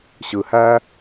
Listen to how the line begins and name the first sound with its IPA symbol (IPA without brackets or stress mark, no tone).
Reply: ɕ